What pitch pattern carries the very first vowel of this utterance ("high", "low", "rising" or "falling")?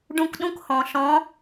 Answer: high